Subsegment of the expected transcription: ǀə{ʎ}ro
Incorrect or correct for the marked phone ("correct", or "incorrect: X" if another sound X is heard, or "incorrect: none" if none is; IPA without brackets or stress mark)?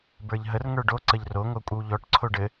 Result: correct